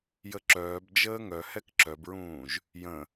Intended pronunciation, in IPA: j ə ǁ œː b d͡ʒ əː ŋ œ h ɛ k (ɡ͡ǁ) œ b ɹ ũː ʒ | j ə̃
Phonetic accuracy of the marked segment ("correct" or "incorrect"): incorrect